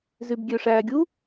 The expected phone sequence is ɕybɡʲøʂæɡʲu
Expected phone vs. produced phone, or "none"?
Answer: ɕ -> z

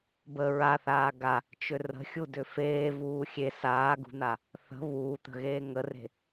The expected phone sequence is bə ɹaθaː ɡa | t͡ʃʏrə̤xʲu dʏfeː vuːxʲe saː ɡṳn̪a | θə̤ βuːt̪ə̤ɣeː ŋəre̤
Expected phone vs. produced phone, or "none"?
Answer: none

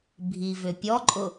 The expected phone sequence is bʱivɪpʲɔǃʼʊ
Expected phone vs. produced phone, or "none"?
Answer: ɪ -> ʏ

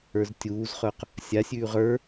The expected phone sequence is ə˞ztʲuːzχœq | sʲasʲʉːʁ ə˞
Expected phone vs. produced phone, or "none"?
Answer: none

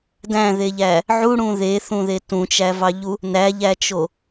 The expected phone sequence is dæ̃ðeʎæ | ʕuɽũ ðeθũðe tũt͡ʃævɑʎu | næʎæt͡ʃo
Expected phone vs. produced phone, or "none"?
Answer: none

